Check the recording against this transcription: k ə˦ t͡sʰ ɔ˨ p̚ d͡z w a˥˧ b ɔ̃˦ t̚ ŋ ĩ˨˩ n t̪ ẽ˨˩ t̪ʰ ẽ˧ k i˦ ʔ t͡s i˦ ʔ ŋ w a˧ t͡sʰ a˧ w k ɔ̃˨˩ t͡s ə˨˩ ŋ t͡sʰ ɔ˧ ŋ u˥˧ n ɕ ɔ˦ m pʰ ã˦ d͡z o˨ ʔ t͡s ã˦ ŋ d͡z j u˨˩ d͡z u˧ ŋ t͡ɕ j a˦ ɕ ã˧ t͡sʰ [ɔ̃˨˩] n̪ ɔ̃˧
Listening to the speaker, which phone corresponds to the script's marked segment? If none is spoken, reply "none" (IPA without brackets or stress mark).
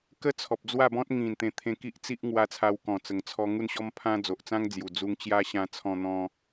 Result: ɔ̃˧